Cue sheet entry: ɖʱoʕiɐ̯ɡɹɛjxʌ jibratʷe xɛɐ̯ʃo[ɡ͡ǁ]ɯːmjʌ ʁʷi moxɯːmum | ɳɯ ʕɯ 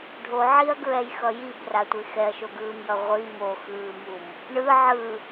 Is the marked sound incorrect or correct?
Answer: incorrect